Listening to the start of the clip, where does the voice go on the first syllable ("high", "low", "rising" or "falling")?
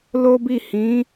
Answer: high